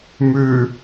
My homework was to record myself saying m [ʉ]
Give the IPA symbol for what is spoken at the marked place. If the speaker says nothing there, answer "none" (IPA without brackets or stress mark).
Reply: ʉ